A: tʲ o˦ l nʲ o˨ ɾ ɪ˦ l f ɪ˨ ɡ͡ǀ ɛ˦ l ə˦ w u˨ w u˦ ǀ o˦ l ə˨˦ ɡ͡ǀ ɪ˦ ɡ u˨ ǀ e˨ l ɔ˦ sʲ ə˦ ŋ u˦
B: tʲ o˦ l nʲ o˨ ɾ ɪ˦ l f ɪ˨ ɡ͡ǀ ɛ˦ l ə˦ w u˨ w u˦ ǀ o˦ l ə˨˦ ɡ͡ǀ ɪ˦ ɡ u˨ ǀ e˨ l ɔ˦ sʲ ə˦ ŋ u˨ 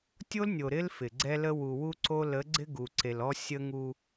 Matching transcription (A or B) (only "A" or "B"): A